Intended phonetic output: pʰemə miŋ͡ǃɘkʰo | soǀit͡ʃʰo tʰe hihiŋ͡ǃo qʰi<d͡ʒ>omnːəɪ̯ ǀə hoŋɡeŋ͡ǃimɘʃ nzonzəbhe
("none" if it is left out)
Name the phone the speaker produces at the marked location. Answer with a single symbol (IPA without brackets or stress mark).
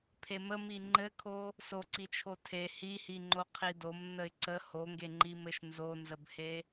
d